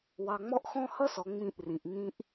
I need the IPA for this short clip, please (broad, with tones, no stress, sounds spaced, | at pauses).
w ɑ˨ ŋ͡m ɔ˦ ʔ x ɔ̃˦ h ʌ˦ s ɔ˨ ŋ͡m ĩ˦˨ ʔ r ĩ˨ ʔ ŋ ĩ˦ ʔ